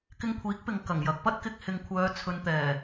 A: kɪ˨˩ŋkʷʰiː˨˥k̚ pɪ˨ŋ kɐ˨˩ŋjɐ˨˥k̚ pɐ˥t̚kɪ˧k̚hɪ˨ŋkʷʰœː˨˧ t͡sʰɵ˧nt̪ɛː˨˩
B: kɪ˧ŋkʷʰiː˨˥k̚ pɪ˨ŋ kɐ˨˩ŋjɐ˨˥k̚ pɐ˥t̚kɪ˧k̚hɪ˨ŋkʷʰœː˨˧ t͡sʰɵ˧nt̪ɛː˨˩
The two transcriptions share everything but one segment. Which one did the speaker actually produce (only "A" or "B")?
B